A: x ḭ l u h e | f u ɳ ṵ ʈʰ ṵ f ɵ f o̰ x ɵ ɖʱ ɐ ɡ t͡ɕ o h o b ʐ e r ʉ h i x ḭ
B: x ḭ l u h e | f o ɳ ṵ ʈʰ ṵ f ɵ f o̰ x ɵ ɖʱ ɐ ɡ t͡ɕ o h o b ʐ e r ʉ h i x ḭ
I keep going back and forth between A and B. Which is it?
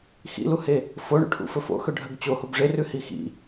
B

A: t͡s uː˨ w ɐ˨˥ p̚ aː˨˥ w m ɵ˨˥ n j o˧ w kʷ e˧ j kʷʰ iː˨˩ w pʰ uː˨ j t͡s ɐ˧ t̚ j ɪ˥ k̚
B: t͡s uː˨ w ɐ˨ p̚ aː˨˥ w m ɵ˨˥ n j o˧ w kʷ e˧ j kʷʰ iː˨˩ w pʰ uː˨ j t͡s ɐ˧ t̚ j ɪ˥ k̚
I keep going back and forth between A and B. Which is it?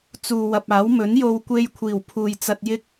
B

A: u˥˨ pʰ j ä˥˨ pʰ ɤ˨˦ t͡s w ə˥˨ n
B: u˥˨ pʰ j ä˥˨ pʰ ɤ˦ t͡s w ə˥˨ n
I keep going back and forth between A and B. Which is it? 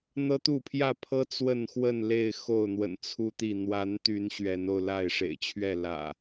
B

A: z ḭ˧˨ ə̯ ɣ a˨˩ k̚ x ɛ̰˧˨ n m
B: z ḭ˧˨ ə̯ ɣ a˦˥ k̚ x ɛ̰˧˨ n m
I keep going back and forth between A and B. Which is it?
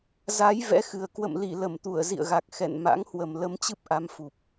A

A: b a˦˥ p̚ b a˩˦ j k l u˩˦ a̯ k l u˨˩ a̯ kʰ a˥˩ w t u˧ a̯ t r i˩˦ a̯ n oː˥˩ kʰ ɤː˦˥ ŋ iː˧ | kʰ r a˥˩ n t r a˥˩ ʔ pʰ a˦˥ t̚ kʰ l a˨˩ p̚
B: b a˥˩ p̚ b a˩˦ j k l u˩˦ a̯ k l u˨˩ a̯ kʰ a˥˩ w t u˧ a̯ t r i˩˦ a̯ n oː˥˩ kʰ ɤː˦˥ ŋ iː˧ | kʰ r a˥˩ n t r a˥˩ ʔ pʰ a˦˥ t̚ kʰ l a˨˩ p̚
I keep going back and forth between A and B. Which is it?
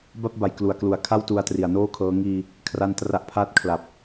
B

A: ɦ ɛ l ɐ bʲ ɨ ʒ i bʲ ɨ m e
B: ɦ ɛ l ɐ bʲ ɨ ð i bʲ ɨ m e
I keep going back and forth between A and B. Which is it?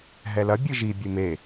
A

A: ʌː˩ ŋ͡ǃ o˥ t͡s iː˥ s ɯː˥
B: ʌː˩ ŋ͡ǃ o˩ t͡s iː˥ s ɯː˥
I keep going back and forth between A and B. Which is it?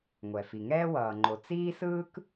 B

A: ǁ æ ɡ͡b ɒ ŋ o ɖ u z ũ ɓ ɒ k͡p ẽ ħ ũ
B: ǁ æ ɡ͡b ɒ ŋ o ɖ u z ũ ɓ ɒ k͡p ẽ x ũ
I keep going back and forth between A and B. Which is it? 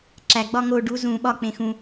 B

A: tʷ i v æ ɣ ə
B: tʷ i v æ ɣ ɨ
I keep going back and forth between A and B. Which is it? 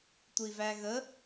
A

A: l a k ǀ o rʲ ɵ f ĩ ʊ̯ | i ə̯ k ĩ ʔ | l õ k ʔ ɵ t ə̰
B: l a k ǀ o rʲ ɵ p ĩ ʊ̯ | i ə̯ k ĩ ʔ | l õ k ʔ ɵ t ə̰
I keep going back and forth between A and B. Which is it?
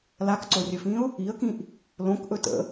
A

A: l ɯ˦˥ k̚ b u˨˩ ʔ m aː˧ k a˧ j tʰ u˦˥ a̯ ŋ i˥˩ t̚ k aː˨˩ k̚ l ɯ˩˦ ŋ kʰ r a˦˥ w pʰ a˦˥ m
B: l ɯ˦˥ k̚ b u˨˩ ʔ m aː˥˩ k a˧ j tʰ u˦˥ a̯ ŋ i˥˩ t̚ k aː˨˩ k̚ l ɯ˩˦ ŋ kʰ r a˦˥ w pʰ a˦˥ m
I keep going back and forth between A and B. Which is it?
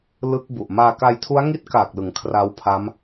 A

